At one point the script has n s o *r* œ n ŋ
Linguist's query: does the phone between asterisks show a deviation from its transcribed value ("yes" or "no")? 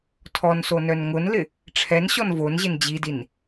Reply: yes